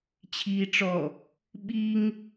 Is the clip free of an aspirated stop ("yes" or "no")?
no